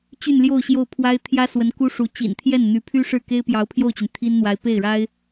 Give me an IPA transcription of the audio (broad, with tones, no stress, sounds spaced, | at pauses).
t͡ɕ y˥˧ n l j o˥˧ ʊ̯ ɕ j o˥˩ ʊ̯ pʰ w a˥ ɪ̯ t̪ʰ j ä˥ s w ə˧˥ n k u˥ ʂ u˧˥ t͡ɕ ḭ˨˩ n t̪ʰ j ɛ˥˩ n n̪ y˧˥ pʰ y˥ ʂ ɻ̩˥˩ k e˥ ɪ̯ p j ɑ˧˥ ʊ̯ pʰ j o˥˩ ʊ̯ t͡ɕ y˩ n t̪ʰ i˥ n n̪ w a˧˥ ɪ̯ p e˥˩ ɪ̯ ɻ a˥ ɪ̯